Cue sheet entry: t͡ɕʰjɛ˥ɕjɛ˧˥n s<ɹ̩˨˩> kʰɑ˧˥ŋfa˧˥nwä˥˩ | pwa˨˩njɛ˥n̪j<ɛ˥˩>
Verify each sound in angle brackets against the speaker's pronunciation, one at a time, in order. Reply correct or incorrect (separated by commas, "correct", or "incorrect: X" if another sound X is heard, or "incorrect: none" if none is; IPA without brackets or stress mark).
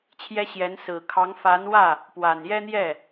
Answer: correct, correct